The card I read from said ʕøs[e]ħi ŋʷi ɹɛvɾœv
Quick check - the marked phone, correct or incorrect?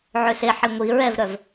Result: correct